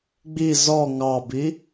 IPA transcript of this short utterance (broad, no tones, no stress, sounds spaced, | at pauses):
ɡ͡b i z ɔ ŋ ɑ b i